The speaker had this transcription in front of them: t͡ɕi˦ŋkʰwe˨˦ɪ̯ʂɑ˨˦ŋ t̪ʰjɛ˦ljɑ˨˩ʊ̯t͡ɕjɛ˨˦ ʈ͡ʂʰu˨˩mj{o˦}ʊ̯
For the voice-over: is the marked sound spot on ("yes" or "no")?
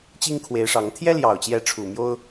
yes